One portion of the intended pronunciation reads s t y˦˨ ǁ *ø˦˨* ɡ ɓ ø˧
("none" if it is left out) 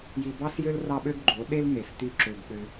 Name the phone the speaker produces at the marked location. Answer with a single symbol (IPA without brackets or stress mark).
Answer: ø˧